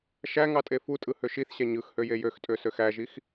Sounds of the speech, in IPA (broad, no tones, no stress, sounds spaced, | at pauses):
ʃ æ ŋ ɑ tʼ e f u tʼ ɯ h ø ʃ i θ ɕ æ ɲ ɯ x h ø j e j ø x tʼ ø s ø x æ ʒ i x